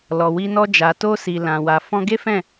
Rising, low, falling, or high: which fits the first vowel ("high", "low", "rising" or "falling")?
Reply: low